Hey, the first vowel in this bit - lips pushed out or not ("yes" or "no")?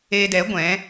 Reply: no